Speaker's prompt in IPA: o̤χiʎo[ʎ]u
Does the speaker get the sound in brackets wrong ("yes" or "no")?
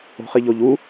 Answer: no